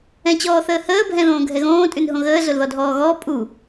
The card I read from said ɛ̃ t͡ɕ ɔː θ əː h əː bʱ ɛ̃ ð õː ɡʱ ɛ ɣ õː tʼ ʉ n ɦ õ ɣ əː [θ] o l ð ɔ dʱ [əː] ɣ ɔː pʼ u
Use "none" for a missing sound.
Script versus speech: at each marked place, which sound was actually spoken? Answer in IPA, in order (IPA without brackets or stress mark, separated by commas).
z, ɔː